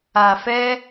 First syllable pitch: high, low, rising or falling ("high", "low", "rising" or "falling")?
low